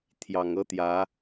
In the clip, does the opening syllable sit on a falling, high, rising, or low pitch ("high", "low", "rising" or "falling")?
low